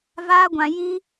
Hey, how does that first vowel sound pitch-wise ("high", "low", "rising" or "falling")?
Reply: high